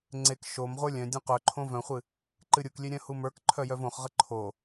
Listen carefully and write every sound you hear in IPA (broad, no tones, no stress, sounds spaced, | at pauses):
ŋ͡ǀ e k ʃ o m ʁʷ ə˞ lʲ œ̃ dʲ õ q œ ǃʰ õ v œ̃ χʷ ɨ | ǃ ɨ ɾʲ u k lʲ e ɾʲ œ̃ h u m ə˞ k ǃʰ œ j œ v õ χ ʁ ə ǃʰ o